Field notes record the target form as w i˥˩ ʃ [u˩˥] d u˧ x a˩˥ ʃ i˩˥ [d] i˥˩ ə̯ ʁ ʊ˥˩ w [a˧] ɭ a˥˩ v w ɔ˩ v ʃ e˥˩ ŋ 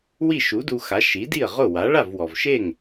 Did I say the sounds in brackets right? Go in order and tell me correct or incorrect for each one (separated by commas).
correct, correct, incorrect